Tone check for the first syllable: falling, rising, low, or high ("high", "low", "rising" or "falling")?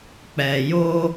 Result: low